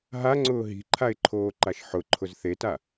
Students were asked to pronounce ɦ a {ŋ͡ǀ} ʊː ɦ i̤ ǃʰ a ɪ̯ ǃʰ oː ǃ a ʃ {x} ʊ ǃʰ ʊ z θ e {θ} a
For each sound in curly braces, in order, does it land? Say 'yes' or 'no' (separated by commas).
yes, no, no